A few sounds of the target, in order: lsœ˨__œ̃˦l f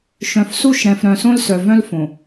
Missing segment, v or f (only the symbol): v